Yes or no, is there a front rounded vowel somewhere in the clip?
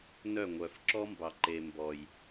yes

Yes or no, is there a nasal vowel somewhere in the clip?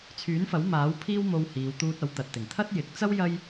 no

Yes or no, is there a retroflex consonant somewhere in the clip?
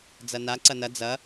no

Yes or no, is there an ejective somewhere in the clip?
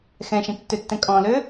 yes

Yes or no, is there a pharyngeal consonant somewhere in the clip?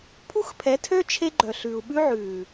yes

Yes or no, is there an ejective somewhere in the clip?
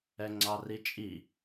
yes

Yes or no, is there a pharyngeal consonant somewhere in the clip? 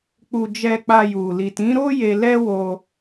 no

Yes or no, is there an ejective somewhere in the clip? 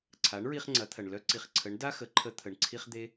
no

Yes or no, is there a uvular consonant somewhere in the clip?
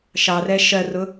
no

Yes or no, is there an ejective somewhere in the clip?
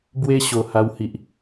no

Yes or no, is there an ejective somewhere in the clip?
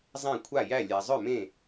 no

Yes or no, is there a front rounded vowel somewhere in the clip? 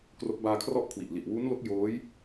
no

